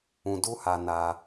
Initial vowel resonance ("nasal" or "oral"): nasal